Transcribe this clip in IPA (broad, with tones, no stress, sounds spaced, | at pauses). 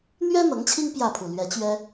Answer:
n̪ ɥ ɛ˥ n̪ ɤ˧˥ ŋ t͡ɕʰ i˥ ŋ p j ä˥˩ pʰ u˨˩ l ɥ ɛ˧˥ t͡ɕ ɥ ɛ˥